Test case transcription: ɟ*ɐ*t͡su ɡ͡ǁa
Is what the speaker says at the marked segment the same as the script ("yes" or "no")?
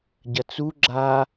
yes